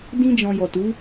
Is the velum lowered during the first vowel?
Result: yes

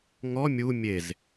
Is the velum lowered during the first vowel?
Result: no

